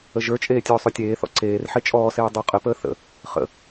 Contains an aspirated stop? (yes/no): no